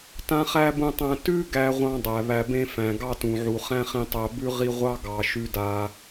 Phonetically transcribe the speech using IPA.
t ã˥ χ æ˥ b ũ˦ tˤ æ̃˦ t ʉ˥ ɡ æ˥ ʁʷ ɑ̃˥ dˤ æ˩ β æ˨ b ẽ˦ f æ̃˩ ɡ ɑ˦ t ũ˩ ʕ u˩ χ æ̃˦ χ ĩ˨ tˤ æ˨ b ʉ˥ ʁ i˦ ʁʷ ɑ˥ ɡ ɑ˩ ʃ ʉ˨ d a˩

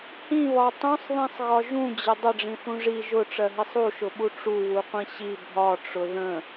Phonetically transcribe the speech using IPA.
h ĩ β ɒ tˤ ũ sˤ ð ĩ sˤ ɣ ɒ ʒ ũ d͡ʑ ə dˤ ə ɖ͡ʐ ĩ θ ũ ʐ i ʒ ʊ ʈ͡ʂ ɜ ɦ i sˤ u ʃ ʊ ɓ u ʈ͡ʂ u w u qʷ ĩ ɕ i bʱ ɒ ʈ͡ʂ ʊ ð ə̃

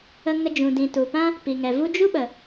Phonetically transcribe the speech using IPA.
ə˧ ŋ ə˧ d͡ʒ ũ˨ d ĩ˨ t u˨ p ã˦ | p i˨ ŋ ɛ˨ v u˦ d͡ʒ u˦ ɓ ə˨

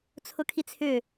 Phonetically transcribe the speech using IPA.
t͡sʰ ʊ kʰ i t͡sʰ ʏ

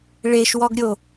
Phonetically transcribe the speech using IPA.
ɭ e ʃ w ɔ ɡ ɾʲ o

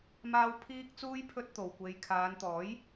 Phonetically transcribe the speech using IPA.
m aː˥ w pʰ iː˥ k̚ t͡s uː˥ j pʰ ɵ˥ t̚ t̪ o˨ w kʷ e˧ j kʰ aː˨˧ n t̪ ɔː˨˥ j

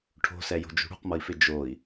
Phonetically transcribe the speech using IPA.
ʈʰ o̤ s ɛ j o̤ d͡ʒ ṳ ɽ ṳ q m ʌ i̯ f ɪ d͡ʒ o i̯

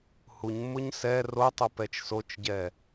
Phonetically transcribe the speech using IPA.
h u ɲ mː ʊ ɲ s ɛ r o tˤ o p ɛ t͡ʃ s o t͡ʃ ɟ ɛ

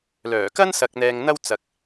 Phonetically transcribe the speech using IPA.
l œː˨˩ k ɐ˥ n s ɐ˧ k̚ n̪ ɛː˧ ŋ n̪ ɐ˥ w t͡s ɐ˨ k̚

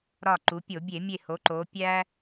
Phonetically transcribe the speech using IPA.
ɾ ɒ˧˩ ǃ u˩˧ pʲ o˧˩˧ bʲ e˧˩˧ mʲ e˧˩ h o˩˧ ǃ o˩˧ pʲ æ˦

